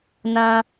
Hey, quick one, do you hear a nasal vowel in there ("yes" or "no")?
yes